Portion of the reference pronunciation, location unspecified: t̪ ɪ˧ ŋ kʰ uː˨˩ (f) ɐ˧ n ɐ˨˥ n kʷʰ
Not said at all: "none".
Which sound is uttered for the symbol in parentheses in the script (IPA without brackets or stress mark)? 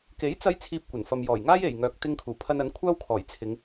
pʰ